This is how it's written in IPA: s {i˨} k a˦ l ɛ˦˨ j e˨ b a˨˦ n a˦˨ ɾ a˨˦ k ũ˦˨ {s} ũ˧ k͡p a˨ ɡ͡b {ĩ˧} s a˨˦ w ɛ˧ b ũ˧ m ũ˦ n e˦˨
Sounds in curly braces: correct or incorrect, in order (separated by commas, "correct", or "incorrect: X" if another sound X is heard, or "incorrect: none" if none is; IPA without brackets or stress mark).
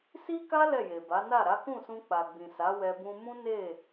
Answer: incorrect: i˦, correct, incorrect: ĩ˨